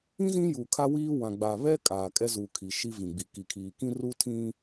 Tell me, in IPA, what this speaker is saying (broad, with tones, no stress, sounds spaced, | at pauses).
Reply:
ĩ˦ z ĩ˦ j u˨ kʰ a˦ w iː˦ w ã˨ ɡ͡b a˨ β ɛ˦ kʼ aː˨ kʼ ɛ˦ z u˨ kʰ i˨ ʃ i˦ v ĩ˨ ɡ͡b i˨ k i˨ kʰ iː˨ k ĩ˦ r u˦ tʰ ĩ˦